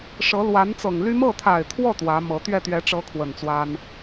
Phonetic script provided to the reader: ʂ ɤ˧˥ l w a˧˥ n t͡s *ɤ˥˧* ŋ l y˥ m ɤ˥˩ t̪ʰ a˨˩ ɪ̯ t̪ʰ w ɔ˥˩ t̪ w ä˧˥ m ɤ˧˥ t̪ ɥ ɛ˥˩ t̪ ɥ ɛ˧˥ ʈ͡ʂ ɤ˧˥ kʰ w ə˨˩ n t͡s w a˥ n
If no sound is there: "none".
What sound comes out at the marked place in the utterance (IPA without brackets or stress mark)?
ɤ˨˩